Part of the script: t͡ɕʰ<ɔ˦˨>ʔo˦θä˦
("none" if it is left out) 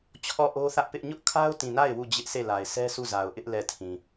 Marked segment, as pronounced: ɔ˦˨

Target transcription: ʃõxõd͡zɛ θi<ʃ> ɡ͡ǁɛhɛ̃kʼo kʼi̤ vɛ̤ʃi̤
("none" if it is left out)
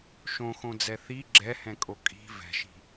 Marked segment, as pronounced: none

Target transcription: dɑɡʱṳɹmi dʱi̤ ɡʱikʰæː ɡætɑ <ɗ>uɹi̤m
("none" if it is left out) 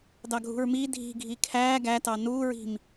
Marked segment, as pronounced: n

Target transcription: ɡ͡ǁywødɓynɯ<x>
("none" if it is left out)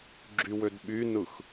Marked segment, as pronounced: x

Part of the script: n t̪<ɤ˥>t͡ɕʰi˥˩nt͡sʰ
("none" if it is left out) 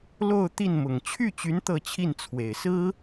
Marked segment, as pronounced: ɤ˥˧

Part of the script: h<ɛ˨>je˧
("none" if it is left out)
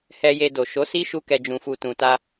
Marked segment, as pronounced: ɛ˧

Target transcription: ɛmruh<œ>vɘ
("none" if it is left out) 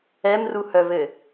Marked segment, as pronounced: œ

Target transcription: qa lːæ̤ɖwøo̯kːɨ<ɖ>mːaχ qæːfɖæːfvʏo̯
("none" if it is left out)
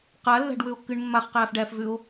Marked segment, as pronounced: ɳ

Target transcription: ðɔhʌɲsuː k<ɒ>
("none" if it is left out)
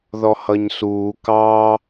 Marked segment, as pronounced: ɑ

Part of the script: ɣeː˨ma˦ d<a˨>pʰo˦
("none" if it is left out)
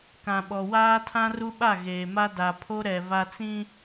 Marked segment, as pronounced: a˨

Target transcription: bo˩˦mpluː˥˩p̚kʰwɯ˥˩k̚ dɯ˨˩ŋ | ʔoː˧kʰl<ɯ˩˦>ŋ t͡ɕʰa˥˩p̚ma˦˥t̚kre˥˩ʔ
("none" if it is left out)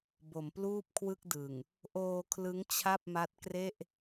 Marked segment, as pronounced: ɯ˦˥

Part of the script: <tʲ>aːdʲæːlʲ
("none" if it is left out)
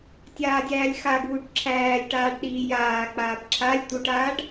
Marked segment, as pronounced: tʲ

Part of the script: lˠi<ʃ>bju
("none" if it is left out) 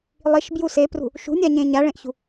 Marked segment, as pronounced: ʃ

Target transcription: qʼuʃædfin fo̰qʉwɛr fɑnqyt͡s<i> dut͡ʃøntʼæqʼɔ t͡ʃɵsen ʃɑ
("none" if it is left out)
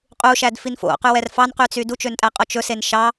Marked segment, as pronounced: y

